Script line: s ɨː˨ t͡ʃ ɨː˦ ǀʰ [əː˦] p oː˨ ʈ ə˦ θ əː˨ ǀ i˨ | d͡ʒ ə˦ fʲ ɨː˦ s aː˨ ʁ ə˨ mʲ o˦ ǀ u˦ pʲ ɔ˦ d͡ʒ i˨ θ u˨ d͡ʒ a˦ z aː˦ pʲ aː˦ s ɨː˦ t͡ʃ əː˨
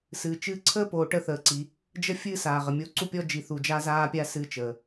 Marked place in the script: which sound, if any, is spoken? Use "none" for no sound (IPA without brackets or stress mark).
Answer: əː˦